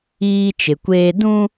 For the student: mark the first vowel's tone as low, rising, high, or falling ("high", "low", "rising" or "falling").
high